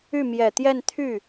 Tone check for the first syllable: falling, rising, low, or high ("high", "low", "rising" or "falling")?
falling